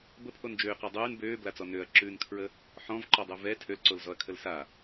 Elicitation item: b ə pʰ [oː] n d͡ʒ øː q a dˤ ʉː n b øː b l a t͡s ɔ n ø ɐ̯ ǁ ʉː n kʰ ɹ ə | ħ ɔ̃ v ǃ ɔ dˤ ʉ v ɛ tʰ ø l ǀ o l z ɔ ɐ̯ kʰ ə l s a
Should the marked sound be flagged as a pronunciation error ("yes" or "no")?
yes